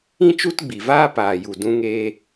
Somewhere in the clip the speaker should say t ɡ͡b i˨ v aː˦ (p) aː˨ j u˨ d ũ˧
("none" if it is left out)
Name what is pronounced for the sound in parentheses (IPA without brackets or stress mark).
p